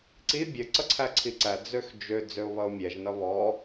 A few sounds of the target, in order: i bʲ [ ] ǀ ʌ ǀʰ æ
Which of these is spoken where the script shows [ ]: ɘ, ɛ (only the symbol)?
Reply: ɘ